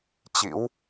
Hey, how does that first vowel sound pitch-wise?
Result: rising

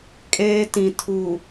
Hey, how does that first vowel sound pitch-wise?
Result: high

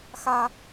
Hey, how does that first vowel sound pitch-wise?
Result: high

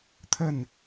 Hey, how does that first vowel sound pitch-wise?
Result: falling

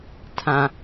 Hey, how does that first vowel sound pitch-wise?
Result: low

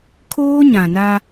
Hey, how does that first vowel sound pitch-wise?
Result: high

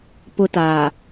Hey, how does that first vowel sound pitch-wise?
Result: high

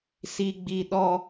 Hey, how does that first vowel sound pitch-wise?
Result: low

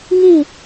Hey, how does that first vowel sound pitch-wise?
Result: falling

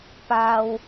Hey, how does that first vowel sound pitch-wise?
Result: low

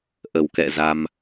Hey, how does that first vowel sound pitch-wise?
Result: low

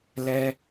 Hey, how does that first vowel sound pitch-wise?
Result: high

